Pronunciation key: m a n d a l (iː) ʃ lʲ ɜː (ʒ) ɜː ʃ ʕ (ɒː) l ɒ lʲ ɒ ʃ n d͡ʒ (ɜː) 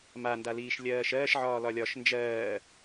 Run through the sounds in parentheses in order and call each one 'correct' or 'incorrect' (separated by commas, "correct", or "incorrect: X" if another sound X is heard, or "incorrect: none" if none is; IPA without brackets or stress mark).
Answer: correct, incorrect: ʃ, correct, correct